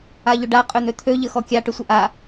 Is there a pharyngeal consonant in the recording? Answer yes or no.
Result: no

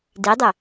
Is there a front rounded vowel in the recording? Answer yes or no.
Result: yes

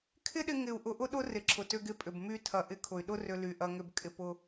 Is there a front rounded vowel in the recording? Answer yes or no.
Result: yes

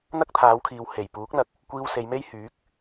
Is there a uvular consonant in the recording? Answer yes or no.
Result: no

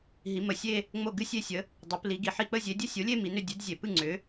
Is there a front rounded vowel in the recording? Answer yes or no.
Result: yes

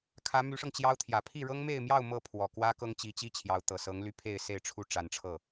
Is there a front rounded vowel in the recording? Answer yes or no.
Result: yes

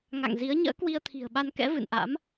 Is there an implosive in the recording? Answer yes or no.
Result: yes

